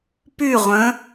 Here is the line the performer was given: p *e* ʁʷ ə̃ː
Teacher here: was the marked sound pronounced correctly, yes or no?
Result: no